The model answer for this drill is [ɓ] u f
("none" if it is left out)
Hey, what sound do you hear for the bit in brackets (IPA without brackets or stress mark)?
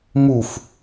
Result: m